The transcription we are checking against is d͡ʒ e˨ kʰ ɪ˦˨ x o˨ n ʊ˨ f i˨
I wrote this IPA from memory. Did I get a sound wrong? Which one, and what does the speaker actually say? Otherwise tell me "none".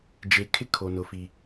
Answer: x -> kʰ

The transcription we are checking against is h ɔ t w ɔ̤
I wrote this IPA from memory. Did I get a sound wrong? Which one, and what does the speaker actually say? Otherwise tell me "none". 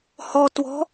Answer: none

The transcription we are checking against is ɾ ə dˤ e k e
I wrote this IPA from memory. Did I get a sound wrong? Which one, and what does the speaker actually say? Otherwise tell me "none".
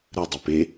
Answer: k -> p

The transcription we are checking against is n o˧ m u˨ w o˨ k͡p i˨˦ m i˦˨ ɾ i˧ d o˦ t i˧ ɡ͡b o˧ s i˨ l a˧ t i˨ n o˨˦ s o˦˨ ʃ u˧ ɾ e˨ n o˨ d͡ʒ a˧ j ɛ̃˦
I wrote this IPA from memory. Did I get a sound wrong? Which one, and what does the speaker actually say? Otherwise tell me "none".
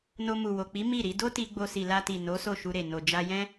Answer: none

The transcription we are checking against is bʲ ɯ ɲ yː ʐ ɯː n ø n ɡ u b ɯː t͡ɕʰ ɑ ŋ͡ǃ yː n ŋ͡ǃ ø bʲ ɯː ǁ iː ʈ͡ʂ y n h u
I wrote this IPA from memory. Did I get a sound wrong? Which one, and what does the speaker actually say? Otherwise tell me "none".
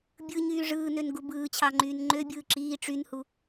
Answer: none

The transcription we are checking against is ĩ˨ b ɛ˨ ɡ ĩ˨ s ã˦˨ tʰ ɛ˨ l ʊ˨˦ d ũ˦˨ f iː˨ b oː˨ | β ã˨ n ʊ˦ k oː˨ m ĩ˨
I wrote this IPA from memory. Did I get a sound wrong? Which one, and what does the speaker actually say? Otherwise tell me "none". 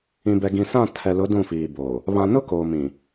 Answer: none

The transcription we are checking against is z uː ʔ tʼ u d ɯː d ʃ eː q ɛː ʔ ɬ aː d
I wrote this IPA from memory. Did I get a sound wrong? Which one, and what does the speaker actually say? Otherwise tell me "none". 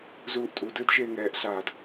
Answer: q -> ŋ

